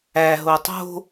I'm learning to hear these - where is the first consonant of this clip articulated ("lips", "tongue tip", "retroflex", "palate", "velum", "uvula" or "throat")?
throat